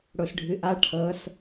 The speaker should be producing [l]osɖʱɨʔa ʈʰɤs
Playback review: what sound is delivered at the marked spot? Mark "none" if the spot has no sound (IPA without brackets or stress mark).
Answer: ɽ